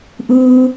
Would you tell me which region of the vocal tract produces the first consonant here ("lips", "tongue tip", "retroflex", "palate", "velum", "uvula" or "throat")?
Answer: throat